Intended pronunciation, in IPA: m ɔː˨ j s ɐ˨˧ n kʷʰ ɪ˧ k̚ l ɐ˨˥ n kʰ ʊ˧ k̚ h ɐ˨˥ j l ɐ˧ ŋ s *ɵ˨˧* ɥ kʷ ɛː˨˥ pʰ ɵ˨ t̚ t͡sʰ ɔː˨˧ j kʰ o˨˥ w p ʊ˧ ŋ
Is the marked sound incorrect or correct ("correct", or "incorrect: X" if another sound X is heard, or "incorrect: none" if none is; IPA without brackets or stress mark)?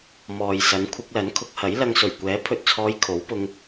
incorrect: ɵ˨˩